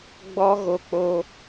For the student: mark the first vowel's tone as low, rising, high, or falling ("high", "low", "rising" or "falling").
high